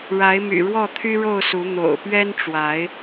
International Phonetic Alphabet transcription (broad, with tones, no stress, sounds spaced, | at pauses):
ɻ a˨˦ ɪ̯ m y̰˨˩ ɻ w ɔ˥˨ t̪ʰ y˦ ɻ o˥˨ ʊ̯ s u˨˦ n̪ o̰˨˩ ʊ̯ p ɥ ɛ˦ n ʈ͡ʂ w a˨˦ ɪ̯